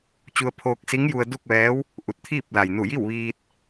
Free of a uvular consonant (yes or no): yes